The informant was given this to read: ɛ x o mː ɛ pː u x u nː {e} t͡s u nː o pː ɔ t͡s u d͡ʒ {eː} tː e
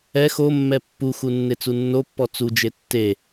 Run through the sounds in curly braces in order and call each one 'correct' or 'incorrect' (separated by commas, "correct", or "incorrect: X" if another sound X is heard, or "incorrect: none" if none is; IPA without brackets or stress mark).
correct, incorrect: e